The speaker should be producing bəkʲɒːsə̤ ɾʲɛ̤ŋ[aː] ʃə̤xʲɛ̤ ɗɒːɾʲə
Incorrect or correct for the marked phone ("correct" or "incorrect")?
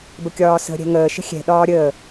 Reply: incorrect